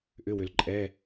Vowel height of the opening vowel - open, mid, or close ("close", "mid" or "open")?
close